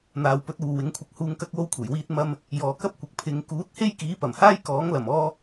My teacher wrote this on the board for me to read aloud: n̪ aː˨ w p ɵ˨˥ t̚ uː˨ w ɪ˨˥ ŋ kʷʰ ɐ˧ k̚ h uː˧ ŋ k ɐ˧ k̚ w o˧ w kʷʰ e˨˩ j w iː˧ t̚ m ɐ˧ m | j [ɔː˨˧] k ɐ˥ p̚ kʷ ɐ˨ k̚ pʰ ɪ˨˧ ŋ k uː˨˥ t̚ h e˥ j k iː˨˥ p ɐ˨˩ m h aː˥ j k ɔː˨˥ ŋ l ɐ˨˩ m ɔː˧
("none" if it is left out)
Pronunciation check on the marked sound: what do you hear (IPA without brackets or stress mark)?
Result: ɔː˨